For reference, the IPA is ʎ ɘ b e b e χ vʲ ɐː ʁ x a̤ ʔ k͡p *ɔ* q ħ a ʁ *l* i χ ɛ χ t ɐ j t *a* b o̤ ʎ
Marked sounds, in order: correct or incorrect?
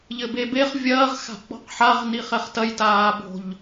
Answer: incorrect: ɔ̤, incorrect: n, incorrect: aː

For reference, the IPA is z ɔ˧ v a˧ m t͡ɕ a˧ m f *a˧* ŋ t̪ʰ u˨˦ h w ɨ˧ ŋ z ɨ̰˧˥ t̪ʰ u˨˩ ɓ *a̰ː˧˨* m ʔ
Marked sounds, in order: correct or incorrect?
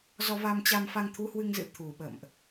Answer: correct, incorrect: ə̰ː˧˨

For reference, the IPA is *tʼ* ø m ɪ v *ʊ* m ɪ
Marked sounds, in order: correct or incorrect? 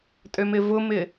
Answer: correct, correct

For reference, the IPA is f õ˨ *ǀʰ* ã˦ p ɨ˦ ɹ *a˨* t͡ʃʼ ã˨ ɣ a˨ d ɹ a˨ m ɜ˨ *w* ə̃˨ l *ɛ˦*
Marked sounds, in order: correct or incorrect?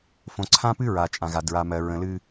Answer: correct, correct, incorrect: ɹ, incorrect: ɨ˦

